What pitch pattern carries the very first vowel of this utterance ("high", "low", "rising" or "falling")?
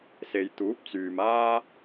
low